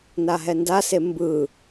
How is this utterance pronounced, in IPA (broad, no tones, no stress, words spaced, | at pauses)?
naɦɛndase mbɯ